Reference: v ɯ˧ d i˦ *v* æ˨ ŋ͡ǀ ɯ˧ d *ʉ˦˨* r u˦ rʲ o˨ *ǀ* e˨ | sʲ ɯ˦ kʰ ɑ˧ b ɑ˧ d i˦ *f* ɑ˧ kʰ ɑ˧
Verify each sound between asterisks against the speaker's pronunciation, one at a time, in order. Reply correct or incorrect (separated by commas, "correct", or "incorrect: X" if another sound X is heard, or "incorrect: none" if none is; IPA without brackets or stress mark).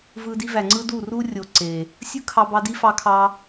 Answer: correct, incorrect: u˦˨, correct, correct